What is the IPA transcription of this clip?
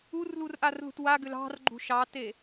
u r l u r ʔ a r l ṳ t w a ɡ ʏ l ɑ̤ r ɡ͡ǃ ṳ ʃ ɑ t e

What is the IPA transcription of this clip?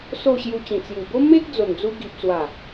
s o˥˧ ɕ j u˧ t͡ɕ ĩ˨˩ t͡s j u˨˩ b o˦ m e˦ k̚ d͡z o˨˩ n d͡z u˧ ɡ i˨ p̚ t͡s w a˨˩

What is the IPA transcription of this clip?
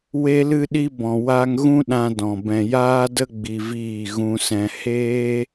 w e˧ l ɨ˧ ɗ i˧ b ɔ̃˨ w a˧ ŋ ɣ ũ˦ ɗ ã˧ d ɔ̃˨ b ɛ̃˨ j aː˦ d ə˦ ɡ͡b i˧ v iː˦˨ ɣ ũ˧ s ɛ̃˧ h eː˦

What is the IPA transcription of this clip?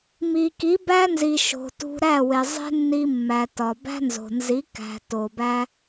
m i˨ k i˨˦ b æ˦ n z i˨ ʃ o̤˨ t ṳ˧ ɾ æ˦˨ w e˨ zˤ e̤˦ nː i˧ mː æ˨ t ɒ˨ b æ̤˦ n z o̤˨ n z i˨˦ k æ̤˨ t o˨ b æ˦

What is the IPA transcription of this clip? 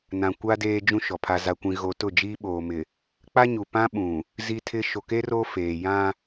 n ã˨ kʷ a˦ d eː˦ d͡ʒ ũ˦ ʃ ɔ˨ pʰ a˦ z a˦ kʷ ĩ˦ ɣ o˦ t ʊ˦˨ d͡ʒ iː˦ ɓ oː˨ m ɪ˨ | k͡p a˦ ɲ u˨ p ã˦ ɓ ũ˨ | z i˦ tʰ ɪ˦ ʃ o˨ k e˦ r o˦ f eː˨ j ã˦

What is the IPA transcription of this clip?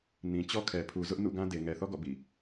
n ĩ˨ t͡ɕ ɔ˦ kʰ ɛ˨ pʰ u˨ z ʊ˦ ʔ n ṵ˦˨ ɡ ã˦ d e˨ ŋ ɛ˨ θ ɔ˦ ɡ ɔ̰˦˨ b ḭ˦˨

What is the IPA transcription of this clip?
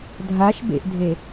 dʱ a ʃ b ḛ ʔ dʱ e

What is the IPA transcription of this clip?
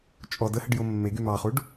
t͡ʃʼ ɔ d ə h ə ɖ j o mː e ɡ y m ɑ χ u ɖ

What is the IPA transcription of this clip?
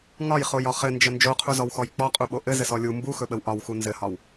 ŋ ɒ j χ o j ɒ χ ɘ n d͡ʒ ə n d͡ʒ o qʰ u z ɔ w x ɔ j k͡p ɔ qʼ u ɓ o ʔ ɘ z ɘ s ɔ lʲ u m b u x ɵ ɓ ə w ʔ ɒ w x u n z ɘ h ɒ w

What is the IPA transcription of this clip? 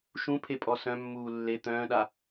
ʃ ũ pʰ e pʼ ɔ s œ̃ mː uː lː e t̪ œ̃ː ɗ a

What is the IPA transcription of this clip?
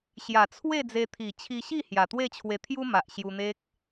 ɕ j a˨˩ t͡sʰ w e˥˧ d͡z e˧ t̪ʰ i˨˩ t͡ɕʰ i˧ ɕ i˥˧ h j a˨˩ t̪ w e˥˧ t͡ɕʰ w e˧ t̪ʰ j u˦ m a˨ ʔ ɕ j u˧ n̪ e˦ k̚

